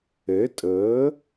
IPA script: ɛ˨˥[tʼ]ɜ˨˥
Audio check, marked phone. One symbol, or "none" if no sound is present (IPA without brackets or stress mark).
tʼ